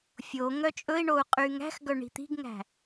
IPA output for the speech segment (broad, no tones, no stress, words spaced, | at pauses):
fʲo ŋœt͡ʃʼɵi̯ɳou̯ qʼyŋæ̤xɡœ ɳi̤t̪i̤ɡŋæ̤